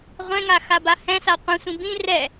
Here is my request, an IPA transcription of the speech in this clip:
ʁʷ ɛ̃ ŋ a x a b a h ɛ̃ s a qʷ ĩ sʷ ĩ b ĩ r ɛ

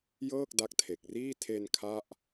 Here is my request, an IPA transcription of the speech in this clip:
j ɤː˥˩ k̚ d a˦˥ k̚ tʰ e˨˩ k̚ r iː˥˩ tʰ e˧ n kʰ a˥˩ ʔ

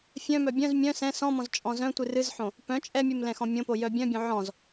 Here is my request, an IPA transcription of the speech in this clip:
fʲ œ̃ m œ bʲ œ̃ z mʲ œ̃ s ɛ̃ s ɔ̃ m ɔ̃ z t͡ʃʼ ɔ̃ z œ̃ tʷ ɨ r ɨ z ħ õ | p œ̃ t͡ʃʼ ɛ mʲ ɨ m l ɛ̃ x ɔ̃ mʲ õ p o j œ bʲ œ̃ bʲ õ ʕ ɔ̃ z

